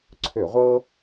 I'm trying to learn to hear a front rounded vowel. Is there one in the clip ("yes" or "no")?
yes